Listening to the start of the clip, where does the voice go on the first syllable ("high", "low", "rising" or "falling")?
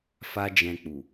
high